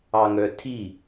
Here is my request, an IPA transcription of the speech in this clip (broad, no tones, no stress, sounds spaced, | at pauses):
ɑ ŋ œ tʰ i